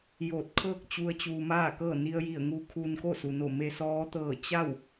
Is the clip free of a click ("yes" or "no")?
yes